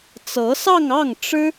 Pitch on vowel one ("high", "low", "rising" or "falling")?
rising